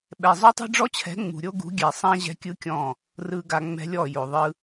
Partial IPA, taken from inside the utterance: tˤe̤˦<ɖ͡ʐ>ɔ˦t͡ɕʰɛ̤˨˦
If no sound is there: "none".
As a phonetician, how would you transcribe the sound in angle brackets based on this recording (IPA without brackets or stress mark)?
ɖ͡ʐ